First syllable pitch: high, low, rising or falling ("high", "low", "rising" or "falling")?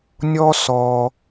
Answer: high